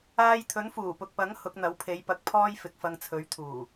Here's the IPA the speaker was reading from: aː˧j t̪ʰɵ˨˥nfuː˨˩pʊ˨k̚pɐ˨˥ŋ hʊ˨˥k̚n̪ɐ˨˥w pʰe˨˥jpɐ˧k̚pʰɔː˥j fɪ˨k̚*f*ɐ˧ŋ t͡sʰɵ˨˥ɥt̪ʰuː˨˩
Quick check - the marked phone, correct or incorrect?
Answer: correct